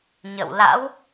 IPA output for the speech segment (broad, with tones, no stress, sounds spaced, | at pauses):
ɲ ə̰˧˨ w l a̰˧˥ w